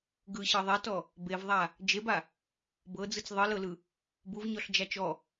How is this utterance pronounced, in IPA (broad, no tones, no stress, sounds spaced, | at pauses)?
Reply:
ɡ ɯ ɕ ɤ ðˤ ɛ t ɔ | b e v ðˤ a | d͡ʒ e b a | b ɤ d͡z ɯ t͡s ðˤ ɯ l ɤ l ɯ | b u v ɲ ɔ ɬ d͡ʒ a t͡ʃ ɔ